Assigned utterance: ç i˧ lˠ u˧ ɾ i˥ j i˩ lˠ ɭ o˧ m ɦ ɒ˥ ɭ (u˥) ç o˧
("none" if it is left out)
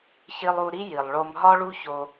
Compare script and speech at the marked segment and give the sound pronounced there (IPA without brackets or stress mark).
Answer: u˥